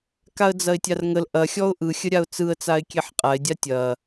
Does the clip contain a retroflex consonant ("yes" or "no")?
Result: no